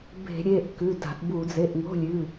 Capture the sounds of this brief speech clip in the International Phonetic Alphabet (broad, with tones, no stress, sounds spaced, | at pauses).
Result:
b e̤˧˩˧ ɾʲ e˩˧˩ ʔ k ʉ˩˧˩ d a̤˧˩˧ ʔ b u˧˩˧ d͡z e˩˧˩ ʔ ŋ o̤˧˥˧ lʲ ʉ˩˧˩